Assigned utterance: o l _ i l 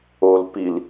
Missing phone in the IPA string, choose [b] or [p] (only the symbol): p